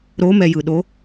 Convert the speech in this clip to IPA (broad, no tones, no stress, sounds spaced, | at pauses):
ɾ o m ɛ j ɯ ɗ o